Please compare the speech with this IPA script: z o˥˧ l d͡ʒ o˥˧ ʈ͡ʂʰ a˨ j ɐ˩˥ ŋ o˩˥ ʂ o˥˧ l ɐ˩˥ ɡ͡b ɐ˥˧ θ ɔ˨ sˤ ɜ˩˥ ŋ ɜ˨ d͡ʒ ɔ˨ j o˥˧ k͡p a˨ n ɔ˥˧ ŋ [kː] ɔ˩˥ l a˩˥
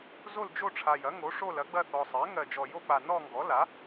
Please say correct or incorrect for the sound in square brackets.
incorrect